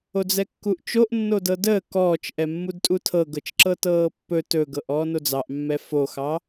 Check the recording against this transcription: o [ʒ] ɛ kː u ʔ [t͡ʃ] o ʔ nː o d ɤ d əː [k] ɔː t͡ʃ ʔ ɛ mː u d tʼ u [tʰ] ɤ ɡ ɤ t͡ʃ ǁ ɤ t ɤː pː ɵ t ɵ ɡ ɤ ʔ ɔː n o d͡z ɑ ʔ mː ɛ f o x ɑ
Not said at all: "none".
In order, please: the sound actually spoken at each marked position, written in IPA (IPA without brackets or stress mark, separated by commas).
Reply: d͡z, t͡ʃ, k, tʰ